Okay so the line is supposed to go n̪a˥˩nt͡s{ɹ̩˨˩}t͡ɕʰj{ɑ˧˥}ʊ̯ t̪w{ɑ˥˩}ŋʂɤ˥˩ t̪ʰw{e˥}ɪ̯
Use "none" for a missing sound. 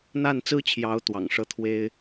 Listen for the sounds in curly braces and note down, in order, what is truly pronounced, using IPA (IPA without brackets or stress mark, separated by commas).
ɹ̩˥, ɑ˧˥, ɑ̰˨˩, e˥